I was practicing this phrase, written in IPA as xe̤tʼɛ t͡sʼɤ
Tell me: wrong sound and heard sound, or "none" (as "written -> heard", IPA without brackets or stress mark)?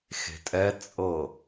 none